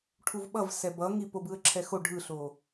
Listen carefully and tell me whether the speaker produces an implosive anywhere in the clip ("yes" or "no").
yes